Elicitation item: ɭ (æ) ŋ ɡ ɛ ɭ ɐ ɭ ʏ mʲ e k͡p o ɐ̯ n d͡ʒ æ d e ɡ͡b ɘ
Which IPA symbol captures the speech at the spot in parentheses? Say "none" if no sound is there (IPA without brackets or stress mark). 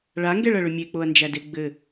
a